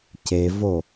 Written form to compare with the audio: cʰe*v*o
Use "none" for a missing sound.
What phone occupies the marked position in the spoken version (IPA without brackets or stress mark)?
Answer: v